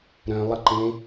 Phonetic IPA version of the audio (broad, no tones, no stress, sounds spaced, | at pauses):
ɾ œ̃ lˠ ə ǃ ẽ